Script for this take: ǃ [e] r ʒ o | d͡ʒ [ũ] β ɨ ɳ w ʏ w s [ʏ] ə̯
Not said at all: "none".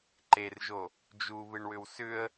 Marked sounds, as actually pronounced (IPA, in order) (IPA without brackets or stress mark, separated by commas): e, u, ʏ